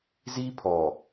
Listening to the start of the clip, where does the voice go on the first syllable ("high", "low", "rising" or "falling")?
high